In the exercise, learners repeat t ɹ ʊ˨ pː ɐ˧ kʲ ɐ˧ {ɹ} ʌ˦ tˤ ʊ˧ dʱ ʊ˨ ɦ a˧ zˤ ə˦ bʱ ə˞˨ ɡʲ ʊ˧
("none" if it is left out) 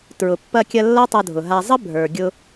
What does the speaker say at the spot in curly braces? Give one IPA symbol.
lː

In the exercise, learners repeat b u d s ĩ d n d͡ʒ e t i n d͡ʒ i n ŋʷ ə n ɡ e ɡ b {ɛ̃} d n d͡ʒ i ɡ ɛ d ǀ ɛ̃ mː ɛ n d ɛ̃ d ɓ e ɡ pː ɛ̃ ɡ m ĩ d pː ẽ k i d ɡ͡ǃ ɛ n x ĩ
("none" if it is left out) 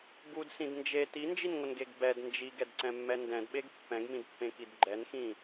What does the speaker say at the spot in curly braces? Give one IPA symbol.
ɛ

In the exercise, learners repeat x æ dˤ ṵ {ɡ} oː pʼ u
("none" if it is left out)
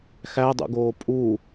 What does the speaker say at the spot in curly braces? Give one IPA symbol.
ɡ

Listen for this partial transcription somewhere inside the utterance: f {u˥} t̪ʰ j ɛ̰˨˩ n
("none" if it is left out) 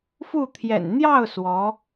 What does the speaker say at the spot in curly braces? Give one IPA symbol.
u˥˩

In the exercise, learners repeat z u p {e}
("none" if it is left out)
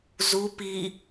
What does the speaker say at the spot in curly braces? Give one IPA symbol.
i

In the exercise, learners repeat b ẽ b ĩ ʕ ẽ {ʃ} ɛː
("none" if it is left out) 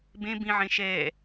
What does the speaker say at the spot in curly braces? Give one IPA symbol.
ʃ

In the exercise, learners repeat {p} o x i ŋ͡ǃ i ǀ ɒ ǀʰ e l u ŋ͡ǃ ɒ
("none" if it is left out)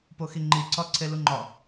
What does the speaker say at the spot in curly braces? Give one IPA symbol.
p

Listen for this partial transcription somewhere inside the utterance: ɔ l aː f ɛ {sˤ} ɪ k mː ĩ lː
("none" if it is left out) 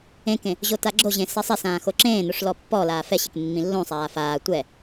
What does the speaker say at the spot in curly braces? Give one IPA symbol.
ɕ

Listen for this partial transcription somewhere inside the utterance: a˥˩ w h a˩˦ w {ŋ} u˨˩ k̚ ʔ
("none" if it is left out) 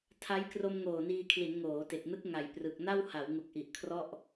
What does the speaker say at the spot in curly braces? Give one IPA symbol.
ŋ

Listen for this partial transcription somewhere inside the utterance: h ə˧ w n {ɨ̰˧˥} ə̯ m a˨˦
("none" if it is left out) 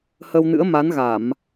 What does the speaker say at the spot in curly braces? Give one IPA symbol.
ɨ̰˧˥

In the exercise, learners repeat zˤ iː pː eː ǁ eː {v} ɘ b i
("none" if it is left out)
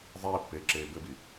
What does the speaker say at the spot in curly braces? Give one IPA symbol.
b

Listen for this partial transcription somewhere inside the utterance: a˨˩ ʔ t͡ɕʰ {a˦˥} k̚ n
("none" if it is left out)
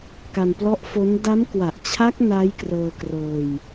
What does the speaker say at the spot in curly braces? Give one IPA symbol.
a˦˥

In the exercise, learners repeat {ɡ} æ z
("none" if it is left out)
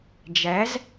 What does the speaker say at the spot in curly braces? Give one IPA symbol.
d͡ʒ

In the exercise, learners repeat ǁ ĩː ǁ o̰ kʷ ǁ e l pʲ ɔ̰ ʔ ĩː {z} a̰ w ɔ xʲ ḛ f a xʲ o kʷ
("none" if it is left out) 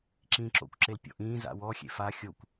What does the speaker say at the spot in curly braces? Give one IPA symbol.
z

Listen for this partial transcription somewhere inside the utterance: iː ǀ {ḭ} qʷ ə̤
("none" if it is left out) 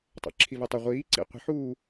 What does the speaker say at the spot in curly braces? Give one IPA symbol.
ḭ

